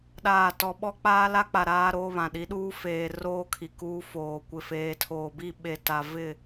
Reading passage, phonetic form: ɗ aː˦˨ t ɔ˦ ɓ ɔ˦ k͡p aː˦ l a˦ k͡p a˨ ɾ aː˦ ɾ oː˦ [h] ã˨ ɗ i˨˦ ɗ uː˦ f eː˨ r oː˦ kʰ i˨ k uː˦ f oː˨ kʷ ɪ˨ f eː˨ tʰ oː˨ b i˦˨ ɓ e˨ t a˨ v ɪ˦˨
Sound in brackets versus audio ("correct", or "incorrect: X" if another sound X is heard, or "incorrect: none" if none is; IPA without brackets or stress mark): incorrect: β